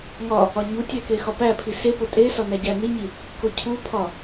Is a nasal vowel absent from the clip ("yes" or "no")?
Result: yes